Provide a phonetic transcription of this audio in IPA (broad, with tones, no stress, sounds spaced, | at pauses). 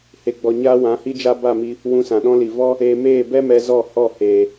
h e˨ ɡ͡b ɔ˨ ɲ a˦ w ã˨˦ h i˦ d͡ʒ a˦ b a˦˨ m i˧ | w ũ˧ s ã˨ ɗ ɔ̃˦ l i˨ v ɔ˦ | eː˧ m eː˦˨ b ɛ˦ m ɛ˧ z ɔ˦˨ h ɔ˦˨ h eː˨